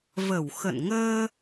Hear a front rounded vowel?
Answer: no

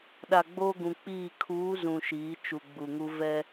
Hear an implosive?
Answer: yes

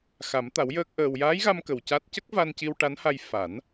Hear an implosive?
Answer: no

